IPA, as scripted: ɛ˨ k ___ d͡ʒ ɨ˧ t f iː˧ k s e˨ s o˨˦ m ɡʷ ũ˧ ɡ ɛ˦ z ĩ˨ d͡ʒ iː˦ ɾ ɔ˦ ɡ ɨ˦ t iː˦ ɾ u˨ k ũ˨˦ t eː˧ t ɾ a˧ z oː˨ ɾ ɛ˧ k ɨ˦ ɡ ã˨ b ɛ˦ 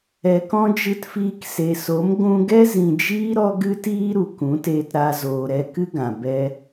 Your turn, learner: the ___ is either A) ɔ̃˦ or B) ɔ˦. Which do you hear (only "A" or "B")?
A